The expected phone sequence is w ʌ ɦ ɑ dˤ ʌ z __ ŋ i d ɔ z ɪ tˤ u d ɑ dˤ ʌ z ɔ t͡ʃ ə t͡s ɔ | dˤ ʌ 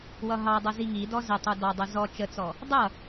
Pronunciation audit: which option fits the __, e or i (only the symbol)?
i